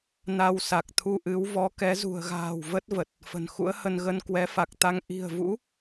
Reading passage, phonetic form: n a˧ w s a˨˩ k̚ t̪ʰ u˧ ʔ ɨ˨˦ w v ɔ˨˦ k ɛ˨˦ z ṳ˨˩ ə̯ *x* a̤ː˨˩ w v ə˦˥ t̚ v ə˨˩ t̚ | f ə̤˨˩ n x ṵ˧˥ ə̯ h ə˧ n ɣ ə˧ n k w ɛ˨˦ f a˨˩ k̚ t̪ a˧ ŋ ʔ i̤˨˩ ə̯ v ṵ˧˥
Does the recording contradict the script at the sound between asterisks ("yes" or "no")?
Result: yes